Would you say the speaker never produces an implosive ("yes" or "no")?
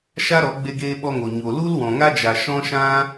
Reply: no